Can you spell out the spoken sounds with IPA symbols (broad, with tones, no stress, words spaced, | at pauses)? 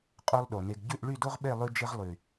qʼo˦lˠɗo˨ne˧ɡ ɟʉ˦˨ʔɭy˦˨do˦ʁɓe˦˨ lˠʉ˦ d͡ʒɪ˦ʁ lˠy˨